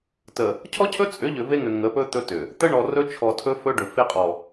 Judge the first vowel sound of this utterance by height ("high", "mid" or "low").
mid